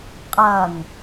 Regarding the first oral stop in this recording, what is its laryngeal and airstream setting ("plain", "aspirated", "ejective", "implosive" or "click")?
ejective